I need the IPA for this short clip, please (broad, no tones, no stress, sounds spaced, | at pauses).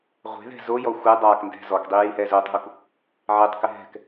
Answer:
ʁʷ e̤ ð ɛ̤ z o j ɔ xʷ ɛ dˤ a k n d ɛ̤ z ɔ k dˤ i j i h ɛ z o tˤ ɦ u k | ʕ ɛ tˤ k ɪ ɦ ɛ̤ k